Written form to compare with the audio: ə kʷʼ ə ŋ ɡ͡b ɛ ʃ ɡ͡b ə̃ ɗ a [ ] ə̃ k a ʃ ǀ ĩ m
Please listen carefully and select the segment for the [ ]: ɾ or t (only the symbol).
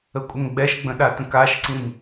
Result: t